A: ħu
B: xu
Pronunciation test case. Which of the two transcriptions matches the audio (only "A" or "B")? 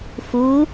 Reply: B